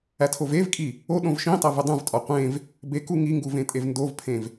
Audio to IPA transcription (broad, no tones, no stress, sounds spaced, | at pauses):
æ tʰ o v e v kʼ i | o ɗ õ v ʃ ĩ tˤ æ v e dˤ ũ v tʼ ɒ qʷ ẽ v | b e k u ŋ i ŋ ɡ u v ẽ tʼ e v n d o v pʰ ẽ v